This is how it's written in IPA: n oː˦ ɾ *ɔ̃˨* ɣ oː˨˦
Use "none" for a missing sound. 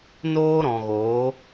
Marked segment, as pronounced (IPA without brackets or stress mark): ɔ̃˨